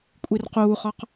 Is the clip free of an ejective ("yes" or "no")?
no